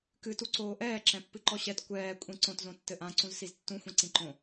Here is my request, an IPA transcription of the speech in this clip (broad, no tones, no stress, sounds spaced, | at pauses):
k ɨ t u ǀ oː ʔ ɛː ǁ ɛ̃ pː ɨ ǃ ɔ ɕ ɛ t kʷ ɛː kʷʼ ĩ ǀ õ t z õ tː ɘ ʔ ã ǀ ũ z s i z tː ũ xʷ ĩ ǀ ĩ ǃ õ